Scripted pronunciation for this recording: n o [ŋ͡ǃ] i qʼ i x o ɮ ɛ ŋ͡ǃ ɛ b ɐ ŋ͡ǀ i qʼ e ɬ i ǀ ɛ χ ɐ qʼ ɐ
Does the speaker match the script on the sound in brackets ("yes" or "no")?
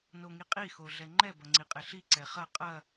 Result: no